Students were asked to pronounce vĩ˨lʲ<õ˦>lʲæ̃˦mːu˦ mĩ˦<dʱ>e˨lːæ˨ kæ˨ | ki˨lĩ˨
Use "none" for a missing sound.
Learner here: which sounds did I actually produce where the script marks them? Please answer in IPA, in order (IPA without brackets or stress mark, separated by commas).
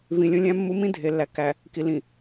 õ˦, dʱ